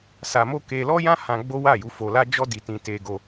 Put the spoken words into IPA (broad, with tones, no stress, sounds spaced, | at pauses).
s a˧ m o˦ k e˧ l ɔ˦ j ã˦ h ã˧ ɡ͡b o˦ w a˦˨ j u˨˦ f o˧ l a˦ d͡ʒ ɔ˦ d i˧ t ĩ˧ t e˧ ɡ o˧